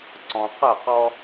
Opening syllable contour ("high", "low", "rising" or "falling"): low